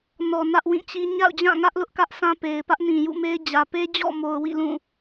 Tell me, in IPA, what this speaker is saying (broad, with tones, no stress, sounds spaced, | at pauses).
n ɔ˨ n ä˦ ʔ w ĩ˦˨ t͡ɕ i˦ ɲ a̰˦˨ ʊ̯ d͡ʑ ã˦˨ ŋ ä˦ ʔ l ʊ˦ ʔ k ä˦ ʔ sʰ ã˦ p e˨ ɪ̯ p ä˦ ʔ n ĩ˨ j ṵ˦˨ m e˦ ɪ̯ d͡ʑ ä˨ p e˦ d͡ʑ ɔ̰˦˨ m o˨ ʊ̯ w ḭ˦˨ l ũ˦˨